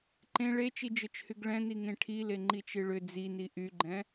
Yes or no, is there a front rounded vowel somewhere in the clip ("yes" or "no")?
yes